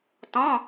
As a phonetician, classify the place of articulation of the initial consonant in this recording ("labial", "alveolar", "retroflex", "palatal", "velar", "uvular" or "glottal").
alveolar